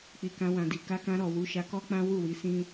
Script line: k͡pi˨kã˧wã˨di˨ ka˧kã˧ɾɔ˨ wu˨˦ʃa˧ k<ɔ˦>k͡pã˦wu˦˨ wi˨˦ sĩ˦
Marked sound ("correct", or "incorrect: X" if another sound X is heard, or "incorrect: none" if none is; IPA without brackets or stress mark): correct